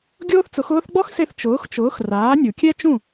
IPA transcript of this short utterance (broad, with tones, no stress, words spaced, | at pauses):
ɡʲoː˥θt͡sʊ˩˥xʊː˥θ ɡ͡bɔ˥xse˧θ t͡ʃʊː˩˥xt͡ʃʊː˩˥x raː˩˥nʲu˩kʲɛ˥t͡ʃũ˥˩